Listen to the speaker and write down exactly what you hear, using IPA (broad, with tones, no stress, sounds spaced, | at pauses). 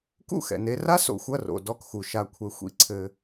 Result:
k ṵ˦˨ x ɛ̰˨ n e˧ r a˦ s o̰˨ xʷ ɐ˦˨ r o̰˨ d ɔ˦˨ k x u˨ ʃ a˧ kʷʰ ɛ˧ xʷ ḭ˧ ǀʰ ɘ˧